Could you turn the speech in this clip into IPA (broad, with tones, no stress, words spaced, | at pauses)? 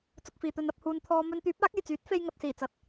t͡sʊ˧k̚fiː˨ t̪ɵ˧nɐ˧p̚huː˧n t̪ʰɔː˧ mɵ˧nt̪yː˨˥p̚ aː˨˥k̚e˨˩jt͡syː˨˥t̚ fe˧jŋɐ˨t̚siː˨˩t͡sɐ˨t̚